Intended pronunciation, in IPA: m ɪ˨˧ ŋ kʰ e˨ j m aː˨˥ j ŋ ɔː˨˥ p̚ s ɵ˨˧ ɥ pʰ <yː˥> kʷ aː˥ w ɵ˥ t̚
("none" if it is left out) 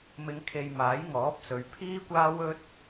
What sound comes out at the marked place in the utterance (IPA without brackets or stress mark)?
iː˥